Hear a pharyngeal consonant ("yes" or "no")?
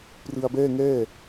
no